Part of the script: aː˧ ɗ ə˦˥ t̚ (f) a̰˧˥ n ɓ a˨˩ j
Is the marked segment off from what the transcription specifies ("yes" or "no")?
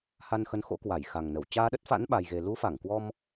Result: no